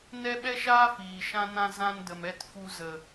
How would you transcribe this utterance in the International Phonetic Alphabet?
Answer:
nɛ˦ɓɛ˦ʃaː˦ fiː˨ʃã˦nã˦ zã˦ndə˨m ɛ˦t fu˧zə˨

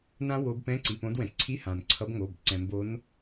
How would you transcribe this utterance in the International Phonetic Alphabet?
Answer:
nã˦˥wo˨˦bpɛ̃˧˥˧ ǀi˩˧˩põ˨˦dwɛ̃˩ ǀʰi˧˥˧hã˩n ǀʰʌ˨˦bŋo˩˧˩b ǀɛ̃˩mbo˨˦n

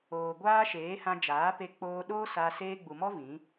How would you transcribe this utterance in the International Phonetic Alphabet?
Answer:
oː˨ɡʷaː˦ʃeː˨˦hã˧ d͡ʒaː˨˦pe˧k͡poː˧ɗoː˦ sa˧ seː˧ɡ͡bu˨mɔ˦ vĩ˨˦

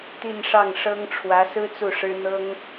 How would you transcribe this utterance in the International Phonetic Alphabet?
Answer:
t̪i˥˧nʂɑ˥˩ŋʂɤ˥ŋ ʈ͡ʂʰwä˧˥sɹ̩˥ t͡su˥˩ʂɻ̩˥ n̪ɤ˥ŋ

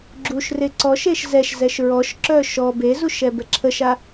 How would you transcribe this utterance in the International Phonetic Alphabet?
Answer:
ɡ͡ǁuʃre ǀɔʃeʃ zɛʃzɛʃ ɹɔʃǁœ ʃɔ bezuʃɛbɛ ǁʰəʃa

